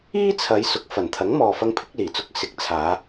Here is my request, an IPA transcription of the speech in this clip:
iː˥t͡sʰɐ˨˧j sʊ˨˥k̚fɐ˨˩nt̪ʰɐ˨˥ŋmɔː˨ fɐ˧ŋpʰɪ˨˥k̚liː˨˩t͡sʊ˧k̚ sɪ˨˥k̚t͡sʰaː˨˧

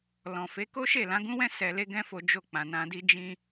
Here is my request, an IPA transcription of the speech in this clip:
lɔ̃˨fe˨˦ ko˦ʃe˦˨lã˨˦ ɡũ˦wɛ̃˦ sɛ˧le˦ ɡɛ̃˦fo˧ d͡ʒo˧k͡pã˨ nã˧di˦ d͡ʒĩ˧

